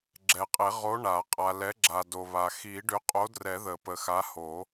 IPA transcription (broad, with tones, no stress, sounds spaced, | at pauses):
ɡ͡ǁ ɛ˨ qʼ e˨˩˦ ʁ o˨˥ ɳ a˨˩˦ qʼ a˨ l ɛ˨˥ ɡ͡ǁ a˨ d o˨ β a˨ x i˨˩˦ ɖ ʏ˨˥ qʼ o˨˥ d r ɛ˨˩˦ ð ə˨˩˦ p ə˨ x a˨˥ h o˨˩˦